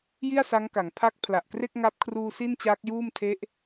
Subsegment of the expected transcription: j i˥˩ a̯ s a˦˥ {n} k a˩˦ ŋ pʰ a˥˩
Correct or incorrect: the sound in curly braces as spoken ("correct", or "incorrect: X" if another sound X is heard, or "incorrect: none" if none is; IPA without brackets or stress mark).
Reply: incorrect: ŋ